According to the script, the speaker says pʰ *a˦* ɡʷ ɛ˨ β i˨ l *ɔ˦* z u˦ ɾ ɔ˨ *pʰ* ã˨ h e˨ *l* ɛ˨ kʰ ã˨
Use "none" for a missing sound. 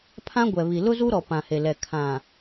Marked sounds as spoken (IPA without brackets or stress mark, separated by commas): ã˦, ʊ˦, p, l